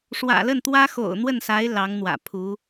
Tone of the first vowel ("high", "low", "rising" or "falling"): low